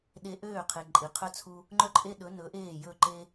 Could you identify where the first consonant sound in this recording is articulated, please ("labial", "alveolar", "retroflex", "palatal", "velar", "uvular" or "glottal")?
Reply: alveolar